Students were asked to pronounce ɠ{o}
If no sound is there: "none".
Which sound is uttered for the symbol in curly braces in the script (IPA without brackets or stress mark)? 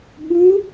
u